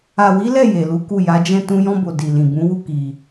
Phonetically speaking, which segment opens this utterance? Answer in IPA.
a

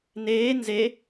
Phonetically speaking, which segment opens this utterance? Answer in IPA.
n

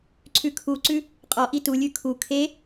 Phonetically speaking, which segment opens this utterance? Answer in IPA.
ǀʰ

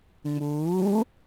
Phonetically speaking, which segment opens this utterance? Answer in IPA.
ŋ͡m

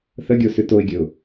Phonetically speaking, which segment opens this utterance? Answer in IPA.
θ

